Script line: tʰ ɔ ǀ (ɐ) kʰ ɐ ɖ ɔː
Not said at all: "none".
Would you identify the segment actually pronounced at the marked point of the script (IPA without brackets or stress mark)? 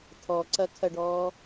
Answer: ɐ